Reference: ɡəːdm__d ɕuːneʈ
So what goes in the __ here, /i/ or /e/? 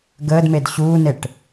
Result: e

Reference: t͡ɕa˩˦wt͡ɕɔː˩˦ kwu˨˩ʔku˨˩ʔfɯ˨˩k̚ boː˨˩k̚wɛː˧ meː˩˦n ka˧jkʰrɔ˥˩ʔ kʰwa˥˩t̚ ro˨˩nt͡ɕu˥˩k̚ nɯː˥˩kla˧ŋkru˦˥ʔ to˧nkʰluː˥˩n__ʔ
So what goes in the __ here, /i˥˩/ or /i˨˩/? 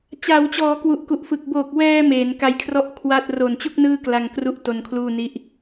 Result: i˥˩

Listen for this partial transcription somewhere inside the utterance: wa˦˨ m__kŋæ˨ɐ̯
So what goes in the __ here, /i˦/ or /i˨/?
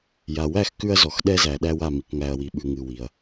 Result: i˨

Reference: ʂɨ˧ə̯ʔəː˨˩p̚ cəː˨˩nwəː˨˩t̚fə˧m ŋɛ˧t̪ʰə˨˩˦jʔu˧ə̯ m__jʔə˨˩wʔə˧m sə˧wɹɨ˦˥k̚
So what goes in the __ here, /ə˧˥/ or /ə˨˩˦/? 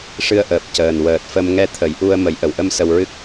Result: ə˨˩˦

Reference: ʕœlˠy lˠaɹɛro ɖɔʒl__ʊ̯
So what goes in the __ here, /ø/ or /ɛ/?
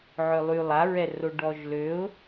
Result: ø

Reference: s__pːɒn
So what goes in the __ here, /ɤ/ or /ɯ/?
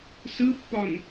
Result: ɯ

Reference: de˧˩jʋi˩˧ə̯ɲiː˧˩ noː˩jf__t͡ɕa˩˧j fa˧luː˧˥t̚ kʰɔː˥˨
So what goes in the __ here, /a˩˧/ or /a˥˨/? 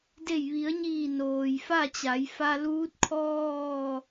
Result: a˥˨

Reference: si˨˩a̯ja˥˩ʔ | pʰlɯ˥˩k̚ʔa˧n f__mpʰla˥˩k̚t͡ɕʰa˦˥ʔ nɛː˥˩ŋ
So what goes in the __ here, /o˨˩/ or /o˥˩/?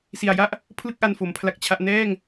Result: o˨˩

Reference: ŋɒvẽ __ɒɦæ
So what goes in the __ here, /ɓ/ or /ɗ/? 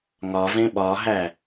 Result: ɓ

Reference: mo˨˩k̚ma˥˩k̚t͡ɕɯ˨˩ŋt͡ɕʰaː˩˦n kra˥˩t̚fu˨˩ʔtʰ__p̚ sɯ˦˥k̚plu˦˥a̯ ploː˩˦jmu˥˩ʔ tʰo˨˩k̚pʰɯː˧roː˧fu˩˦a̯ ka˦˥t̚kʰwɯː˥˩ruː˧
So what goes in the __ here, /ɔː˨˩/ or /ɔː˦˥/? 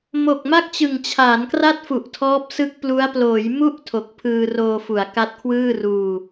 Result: ɔː˦˥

